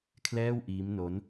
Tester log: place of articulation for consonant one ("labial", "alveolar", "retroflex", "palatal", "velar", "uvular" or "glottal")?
velar